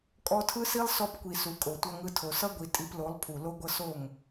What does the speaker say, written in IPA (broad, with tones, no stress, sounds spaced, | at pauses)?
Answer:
kʼ ɔ˧ tʰ ɯ˦ s i˦ lˠ s ɔ˧ p kʷ i˨ s u˨ kʼ o˨ tʷ ʌ˧ ŋ ɯ˧ tʰ o˨ s ʌ˦ ɡʷ i˨ tʼ i˧ p l o˨˦ lˠ pʰ u˨ l o˧ ɡʷ ʌ˧ s o˦˨ ŋ